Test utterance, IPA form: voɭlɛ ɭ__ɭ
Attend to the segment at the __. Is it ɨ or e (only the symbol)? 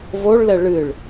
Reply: ɨ